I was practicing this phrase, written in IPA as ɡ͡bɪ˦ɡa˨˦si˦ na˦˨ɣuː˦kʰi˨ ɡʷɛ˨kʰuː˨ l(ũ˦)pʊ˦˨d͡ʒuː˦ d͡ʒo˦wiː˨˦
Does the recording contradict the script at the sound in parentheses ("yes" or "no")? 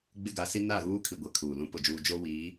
no